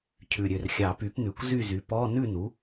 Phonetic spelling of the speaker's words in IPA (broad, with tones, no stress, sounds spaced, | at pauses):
cʰ ʉ˨˩ ɾʲ ø˨˩ r xʲ ɑ˨˩˦ p y˩˥ p n ʉ˨˩ kʷ z y˥˨ z y˩˥ p ɔ˧˥˧ n ʉ˥˨ n u˩˥